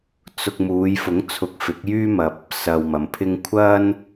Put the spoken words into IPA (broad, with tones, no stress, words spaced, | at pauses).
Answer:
t͡sʊ˧k̚ muː˨˧jfʊ˨˥ŋt͡sʰʊ˨˥k̚ fɪ˨˥k̚jyː˥mɐ˧p̚ | sɐ˧wmɐ˨mpʰɪ˥ŋ kʷʰɐ˥n